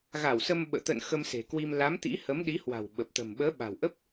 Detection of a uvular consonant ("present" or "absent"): absent